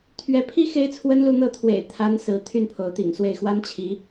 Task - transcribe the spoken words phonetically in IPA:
t̪ʰ ɥ ɛ˧˥ pʰ i˥ x e˥ ɪ̯ t͡sʰ w ə˥ n l u˥˧ n̪ ɤ˥˩ t̪ʰ w ḛ˨˩ ɪ̯ t̪ʰ a˧˥ n s ɹ̩˧˥ t̪ʰ y˥˩ n pʰ o˧˥ ʊ̯ t̪ ḭ˨˩ ŋ s w e˥˩ ɪ̯ x w a˥ n t͡ɕʰ i˧˥

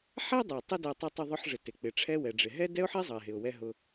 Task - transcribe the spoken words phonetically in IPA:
ħ æ˥ dˤ ɛ˩ tˤ ə˥ d æ˧ tˤ ɛ˧ tˤ ʊ˧ ðˤ ʊ˧ ħ ʐ ɪ˩ t ɪ˩ k͡p ɪ˩ ʈ͡ʂʰ ɛ˧ w ɛ˩ ɖ͡ʐ ɪ˩ ɦ ɛ˥ d ɛ˥ ʊ̯ ħ ɛ˥ zˤ ʌ˩ ɪ̯ ɦ ɪ˩ ʊ̯ w ɛ˧ ɦ ʊ˧

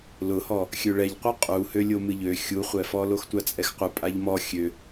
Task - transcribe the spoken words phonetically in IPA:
l ʊ h ɔ | xʲ ø ɭ ɛ ʎ qʷ ɨ qʼ u h ø lʲ o m ɨ ʎ ø xʲ u χʷ ɛ f ɔ l o x tʷ a t͡sʼ ɛ x qʷ ɨ pʼ a ʎ m ɔ xʲ ø

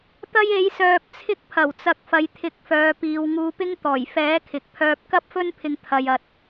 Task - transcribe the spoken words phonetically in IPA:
t̪ ɐ˥ j e˨˥ j s œː˧ p̚ t͡sʰ ɪ˥ k̚ pʰ ɐ˨˩ w t͡s ɐ˨˥ k̚ f ɐ˨˧ j t̪ʰ ɪ˨˥ k̚ f œː˨ p iː˨ w ŋ uː˧ p ɪ˥ ŋ t̪ ɔː˨˩ j f ɛː˨˥ kʰ ɪ˨ k̚ pʰ œː˧ p̚ k ɐ˥ p̚ f ɵ˥ n pʰ ɪ˧ ŋ t̪ʰ ɐ˧ j ɐ˧ t̚

